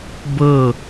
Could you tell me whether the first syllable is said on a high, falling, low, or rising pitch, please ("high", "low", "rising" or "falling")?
falling